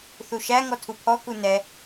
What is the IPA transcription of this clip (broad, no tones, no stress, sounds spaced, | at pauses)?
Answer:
θ u ʃ æ ŋ ɔ tʰ u pʰ ɔ k u n ɛ